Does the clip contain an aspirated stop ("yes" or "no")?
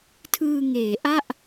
yes